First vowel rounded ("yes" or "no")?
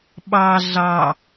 no